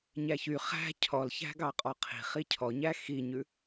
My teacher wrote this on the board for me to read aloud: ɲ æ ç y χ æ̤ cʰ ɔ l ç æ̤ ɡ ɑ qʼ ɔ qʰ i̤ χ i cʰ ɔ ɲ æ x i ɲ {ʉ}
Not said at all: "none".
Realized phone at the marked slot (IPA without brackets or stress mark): ʉ